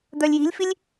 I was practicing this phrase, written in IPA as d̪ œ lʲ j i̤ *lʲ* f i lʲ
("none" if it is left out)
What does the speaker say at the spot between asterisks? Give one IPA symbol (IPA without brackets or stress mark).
lʲ